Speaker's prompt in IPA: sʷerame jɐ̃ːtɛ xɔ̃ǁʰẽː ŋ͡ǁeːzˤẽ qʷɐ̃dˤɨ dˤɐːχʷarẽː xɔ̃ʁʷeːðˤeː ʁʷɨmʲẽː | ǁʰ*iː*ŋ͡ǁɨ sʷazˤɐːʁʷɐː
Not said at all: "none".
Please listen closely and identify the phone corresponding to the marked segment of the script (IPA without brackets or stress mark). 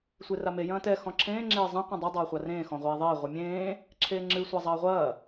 eː